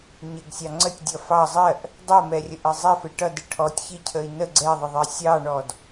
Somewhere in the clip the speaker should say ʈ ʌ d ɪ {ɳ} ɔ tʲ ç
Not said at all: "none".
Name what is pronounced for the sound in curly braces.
ʈʰ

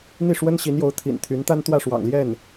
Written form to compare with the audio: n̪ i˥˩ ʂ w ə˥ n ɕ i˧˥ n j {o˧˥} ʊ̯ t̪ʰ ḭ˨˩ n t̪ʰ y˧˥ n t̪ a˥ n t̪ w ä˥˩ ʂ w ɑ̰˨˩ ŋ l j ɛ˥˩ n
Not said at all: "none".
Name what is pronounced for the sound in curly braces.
o˧˥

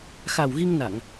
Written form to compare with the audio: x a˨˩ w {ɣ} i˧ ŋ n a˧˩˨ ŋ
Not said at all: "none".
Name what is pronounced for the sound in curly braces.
ɣ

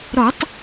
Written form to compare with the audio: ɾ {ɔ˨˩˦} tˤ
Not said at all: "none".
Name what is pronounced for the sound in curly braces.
ɔ˨˩˦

